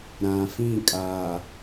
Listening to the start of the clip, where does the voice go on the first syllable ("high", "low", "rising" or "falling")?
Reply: low